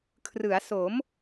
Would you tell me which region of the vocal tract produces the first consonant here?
velum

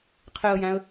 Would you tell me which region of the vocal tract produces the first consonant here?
uvula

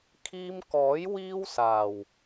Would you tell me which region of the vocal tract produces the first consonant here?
velum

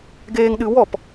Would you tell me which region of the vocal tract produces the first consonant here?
velum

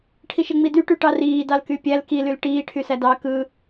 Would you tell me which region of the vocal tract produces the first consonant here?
retroflex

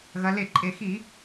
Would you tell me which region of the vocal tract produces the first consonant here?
velum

